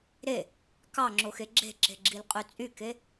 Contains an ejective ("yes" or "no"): yes